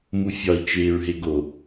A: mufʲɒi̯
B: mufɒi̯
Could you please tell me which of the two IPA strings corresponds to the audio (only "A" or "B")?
A